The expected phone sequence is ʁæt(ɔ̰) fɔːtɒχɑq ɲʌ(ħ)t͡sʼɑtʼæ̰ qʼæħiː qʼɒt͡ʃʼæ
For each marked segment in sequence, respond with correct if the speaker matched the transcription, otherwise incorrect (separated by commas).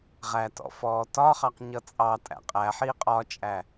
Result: correct, incorrect